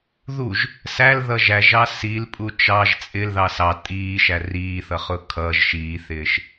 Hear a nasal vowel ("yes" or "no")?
no